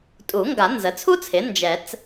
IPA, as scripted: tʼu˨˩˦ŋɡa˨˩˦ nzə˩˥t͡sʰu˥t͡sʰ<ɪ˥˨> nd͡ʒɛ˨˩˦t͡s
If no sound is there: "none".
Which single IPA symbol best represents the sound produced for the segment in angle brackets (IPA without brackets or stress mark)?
ɪ˩˥